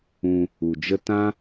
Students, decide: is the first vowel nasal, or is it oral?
nasal